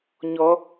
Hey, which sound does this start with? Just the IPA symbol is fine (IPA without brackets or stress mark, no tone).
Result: ɲ